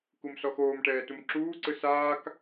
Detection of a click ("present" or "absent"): present